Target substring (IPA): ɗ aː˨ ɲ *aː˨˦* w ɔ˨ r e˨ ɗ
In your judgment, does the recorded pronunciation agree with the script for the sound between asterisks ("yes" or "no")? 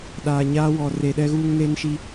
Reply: no